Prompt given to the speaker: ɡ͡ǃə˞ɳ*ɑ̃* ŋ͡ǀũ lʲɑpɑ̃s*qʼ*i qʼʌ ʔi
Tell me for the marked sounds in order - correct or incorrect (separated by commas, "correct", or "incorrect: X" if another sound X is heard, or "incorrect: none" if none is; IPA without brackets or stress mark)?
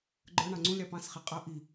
correct, incorrect: χ